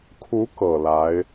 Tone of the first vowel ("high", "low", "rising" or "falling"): rising